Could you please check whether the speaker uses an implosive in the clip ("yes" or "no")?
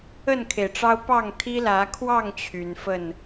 no